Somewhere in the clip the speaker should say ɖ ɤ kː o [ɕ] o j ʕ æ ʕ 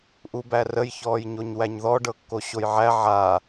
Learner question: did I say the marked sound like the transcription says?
yes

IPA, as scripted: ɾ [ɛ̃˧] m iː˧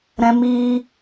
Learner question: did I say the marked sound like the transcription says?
yes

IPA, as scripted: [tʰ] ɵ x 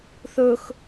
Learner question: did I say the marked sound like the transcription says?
no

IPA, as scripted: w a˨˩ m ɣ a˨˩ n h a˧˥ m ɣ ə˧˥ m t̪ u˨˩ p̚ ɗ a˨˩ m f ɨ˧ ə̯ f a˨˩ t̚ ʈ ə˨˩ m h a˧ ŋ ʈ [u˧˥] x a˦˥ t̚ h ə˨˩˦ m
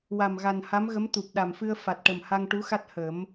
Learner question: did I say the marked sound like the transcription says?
yes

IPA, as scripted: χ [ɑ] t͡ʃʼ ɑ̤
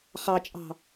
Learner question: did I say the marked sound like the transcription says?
yes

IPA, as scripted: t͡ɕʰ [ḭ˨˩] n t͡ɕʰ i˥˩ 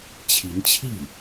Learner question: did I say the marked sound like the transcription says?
no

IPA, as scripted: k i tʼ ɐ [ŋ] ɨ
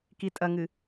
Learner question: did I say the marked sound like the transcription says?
yes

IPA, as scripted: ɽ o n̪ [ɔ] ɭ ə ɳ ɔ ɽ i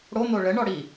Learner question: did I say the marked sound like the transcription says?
no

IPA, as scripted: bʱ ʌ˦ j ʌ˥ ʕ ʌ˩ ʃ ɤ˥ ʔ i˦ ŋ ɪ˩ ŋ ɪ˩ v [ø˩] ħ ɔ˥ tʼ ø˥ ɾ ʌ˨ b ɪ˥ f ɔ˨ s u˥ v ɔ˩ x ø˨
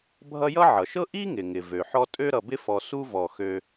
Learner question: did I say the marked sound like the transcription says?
yes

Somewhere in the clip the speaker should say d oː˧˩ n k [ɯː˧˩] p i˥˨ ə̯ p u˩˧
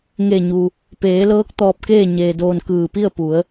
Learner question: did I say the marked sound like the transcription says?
yes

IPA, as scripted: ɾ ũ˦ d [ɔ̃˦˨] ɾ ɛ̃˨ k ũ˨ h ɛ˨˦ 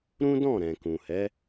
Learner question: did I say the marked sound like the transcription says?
yes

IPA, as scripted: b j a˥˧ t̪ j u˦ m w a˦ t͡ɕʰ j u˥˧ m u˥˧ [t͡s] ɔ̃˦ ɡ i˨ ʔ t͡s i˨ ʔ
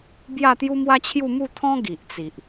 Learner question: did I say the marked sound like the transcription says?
no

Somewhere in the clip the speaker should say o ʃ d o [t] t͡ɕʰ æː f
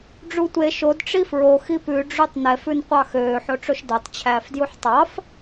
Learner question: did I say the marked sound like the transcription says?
no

